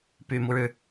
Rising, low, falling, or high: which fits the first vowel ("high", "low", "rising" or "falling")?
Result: low